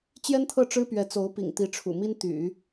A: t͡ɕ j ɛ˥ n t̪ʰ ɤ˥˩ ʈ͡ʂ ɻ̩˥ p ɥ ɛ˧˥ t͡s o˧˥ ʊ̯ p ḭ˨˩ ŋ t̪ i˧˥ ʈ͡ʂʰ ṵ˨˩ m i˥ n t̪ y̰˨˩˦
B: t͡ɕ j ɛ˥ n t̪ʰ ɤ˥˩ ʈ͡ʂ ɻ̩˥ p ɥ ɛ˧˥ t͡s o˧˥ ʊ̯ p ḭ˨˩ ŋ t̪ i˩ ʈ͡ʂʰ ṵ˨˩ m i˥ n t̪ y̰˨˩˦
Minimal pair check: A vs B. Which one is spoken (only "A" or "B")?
A